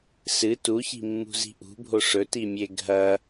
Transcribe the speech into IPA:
s ɨ t u ç i̤ mː ṳ z i̤ ʔ ṳ bʱ o ʂ ɵ t i mʲ e ɡʱ ɐ

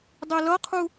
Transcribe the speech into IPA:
dˤ i l ʌ qʰ u

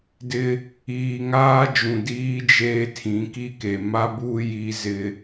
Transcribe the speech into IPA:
d ɪ˦ | iː˨ ŋ aː˦ d͡ʒ ũ˨ d iː˦ d͡ʒ eː˦ tʰ ĩ˨˦ k i˦ k e˨ m a˦ b uː˦ j i˦ z ɪ˦

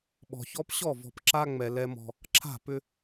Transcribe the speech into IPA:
ɓ ɔ̤˨ ç ɔ˦ p ɕ ɔ˦˨ v ɔ̤˨ p ǁ a˦ ŋ͡m ɛ˨ l ɛ˦ m ɔ̤˦ | ǁʰ a̤˦˨ p ʏ˦

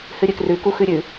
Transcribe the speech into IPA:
h ɨ ɾʲ ɨ k r ʉ k u x ʉ ɾʲ ʉ

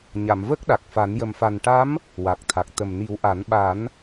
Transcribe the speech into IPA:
ɲ a˨˩˨ m v ə˦˥ k̚ ɗ a˨˩ k̚ f a˨˩˦ n j ə˨˩ m f a˨˩ n ʈ a˧˥ m | w a˨˩ k̚ t̪ʰ a˨˩ k̚ t̪ ə˨˩ m n i˨˩˦ w ʔ a˨˩˦ n ɓ a˨˩˦ n

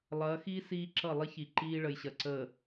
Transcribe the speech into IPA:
lˠ ɐː˨˦ x iː˦ s iː˦ ǁ ʌ˦˨ lˠ i˦ ç i˨ ǃ iː˦ ɭ ə˨ j ɕ ɐ˨ ǀ əː˨

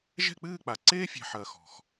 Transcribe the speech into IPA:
ʒ ɛ̤˥˨ k͡p ɨː˥˨ k͡p a˨˩ ǀ eː˥ fʲ ɛ̤˨˩ ħ ɐː˨˩ x ɔ̤˨˩ x

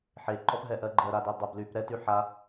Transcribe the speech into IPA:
ħ e ǃ ɔ p ɦ ɛ ʔ ɜ ɡ͡ǃ ɜ ɾ a d e dˤ ə b l y p ɾ ɛ t y ħ a

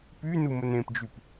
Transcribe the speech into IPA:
p y n u m ə n ẽ p d͡ʒ y p

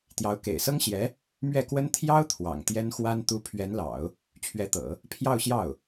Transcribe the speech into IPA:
t̪ j ɑ˧˥ ʊ̯ k ḛ˨˩ ɪ̯ s ɤ˥ ŋ ɕ j ɛ˧˥ | m ɥ ɛ˥˩ k w ə˥ n t̪ʰ j ɑ˥ ʊ̯ t̪ʰ w ɑ̰˨˩ ŋ t̪ j ɛ˥ n x w a˥ n t̪ u˧˥ pʰ ɥ ɛ˧˥ n l ɑ̰˨˩˦ ʊ̯ | t͡ɕʰ ɥ ɛ˧˥ t̪ ɤ̰˨˩˦ | pʰ j ɑ˥˧ ʊ̯ ɕ j ɑ˥˩ ʊ̯

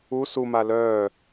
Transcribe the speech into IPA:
u s u m a l œː

